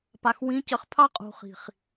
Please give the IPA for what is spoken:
p a˨ x w ĩ˨˦ c ə˨ χ pʰ ɑ˦ qʼ ṳ˨ χ i̤˨ χ

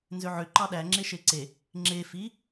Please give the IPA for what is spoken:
n z ø ʕ ø ǃ ɑ ɗ æ ŋ͡ǁ e ʃ e ǀ e | ŋ͡ǁ e f i

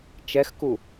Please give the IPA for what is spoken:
t͡ʃ ɛ x k u

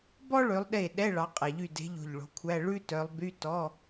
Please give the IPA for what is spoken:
b ɔ˥ ɭ ø˨˦ lˠ ɗ e˧˩ ɗ ɛ˧˥˧ ɭ ɑ˨˦ qʼ ɛ˨˩˦ ʎ y˧˩ d e̤˨˦ ʎ o̤˧˩ ʎ ɭ o̤˨˦ kʷʰ æ˧˥˧ ɭ ʉ˥ t œ˨˦ lˠ b y˧˥˧ t ɔ˧˥˧

